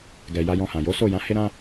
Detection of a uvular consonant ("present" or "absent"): absent